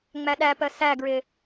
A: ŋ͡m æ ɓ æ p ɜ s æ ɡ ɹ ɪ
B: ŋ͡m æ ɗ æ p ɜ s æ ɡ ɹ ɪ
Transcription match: B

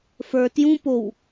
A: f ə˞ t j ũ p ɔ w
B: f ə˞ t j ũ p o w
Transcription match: B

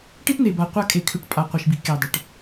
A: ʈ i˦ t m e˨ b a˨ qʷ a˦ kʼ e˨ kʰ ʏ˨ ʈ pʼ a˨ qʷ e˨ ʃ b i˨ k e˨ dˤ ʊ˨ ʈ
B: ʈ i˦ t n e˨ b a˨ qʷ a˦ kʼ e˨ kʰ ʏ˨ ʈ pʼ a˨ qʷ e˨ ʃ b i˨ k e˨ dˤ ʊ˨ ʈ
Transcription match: B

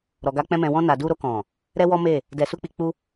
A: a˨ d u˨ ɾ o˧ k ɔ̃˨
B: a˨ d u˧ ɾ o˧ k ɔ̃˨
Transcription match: B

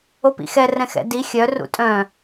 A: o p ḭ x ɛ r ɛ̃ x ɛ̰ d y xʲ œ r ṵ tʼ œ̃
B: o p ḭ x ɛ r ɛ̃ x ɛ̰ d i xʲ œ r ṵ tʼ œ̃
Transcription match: B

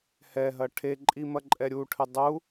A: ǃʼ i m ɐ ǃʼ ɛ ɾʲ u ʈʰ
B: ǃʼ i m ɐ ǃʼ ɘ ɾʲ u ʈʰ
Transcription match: A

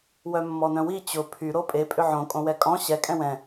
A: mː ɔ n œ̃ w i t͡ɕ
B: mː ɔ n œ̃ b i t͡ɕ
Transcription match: A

